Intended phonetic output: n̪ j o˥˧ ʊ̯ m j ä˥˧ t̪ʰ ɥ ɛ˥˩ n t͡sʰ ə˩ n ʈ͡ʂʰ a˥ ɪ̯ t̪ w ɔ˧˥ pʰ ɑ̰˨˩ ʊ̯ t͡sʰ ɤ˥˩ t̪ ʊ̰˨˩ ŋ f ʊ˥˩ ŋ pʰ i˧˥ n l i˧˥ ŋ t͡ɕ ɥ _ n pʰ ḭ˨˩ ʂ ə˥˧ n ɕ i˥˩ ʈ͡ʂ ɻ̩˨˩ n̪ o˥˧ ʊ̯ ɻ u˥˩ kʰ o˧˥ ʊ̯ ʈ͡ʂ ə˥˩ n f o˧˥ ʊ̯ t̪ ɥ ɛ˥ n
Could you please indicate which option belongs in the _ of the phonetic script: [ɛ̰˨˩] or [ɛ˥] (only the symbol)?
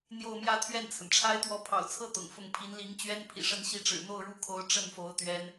ɛ˥